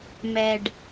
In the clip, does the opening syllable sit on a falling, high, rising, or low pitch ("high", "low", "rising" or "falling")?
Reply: low